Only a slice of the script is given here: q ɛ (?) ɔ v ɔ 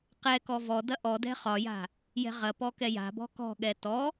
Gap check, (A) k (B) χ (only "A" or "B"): A